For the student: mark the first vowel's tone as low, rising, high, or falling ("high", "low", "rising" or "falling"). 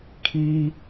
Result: high